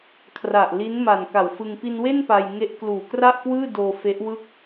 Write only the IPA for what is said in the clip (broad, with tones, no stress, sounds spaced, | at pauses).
kʰ r a˨˩ ʔ l i˦˥ n m a˨˩ n k a˨˩ w f ɯ˧ ŋ p i˧ n w e˥˩ n p a˧ j ŋ e˦˥ ʔ k l uː˨˩ k r a˥˩ ʔ k w ɯː˥˩ d oː˧ f e˦˥ ʔ w ɯ˥˩ k̚